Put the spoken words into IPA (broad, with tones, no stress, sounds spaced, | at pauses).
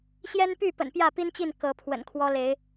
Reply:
ɕ j ɛ˦ n p y˥˨ p ə̰˨˩ n p j ä˥˨ p i˦ n t͡ɕ i˥˨ n k ɤ˨˦ pʰ w ə̰˨˩ n kʰ w ɔ˦ l e˨˦ ɪ̯